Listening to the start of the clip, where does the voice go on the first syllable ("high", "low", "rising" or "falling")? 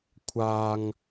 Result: high